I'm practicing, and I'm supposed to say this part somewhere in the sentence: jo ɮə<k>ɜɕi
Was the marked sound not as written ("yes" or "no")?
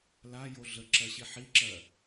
yes